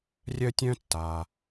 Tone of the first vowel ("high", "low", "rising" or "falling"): high